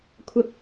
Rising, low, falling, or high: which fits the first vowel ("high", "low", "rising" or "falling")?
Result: high